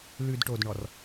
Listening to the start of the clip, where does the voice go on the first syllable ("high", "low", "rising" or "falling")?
low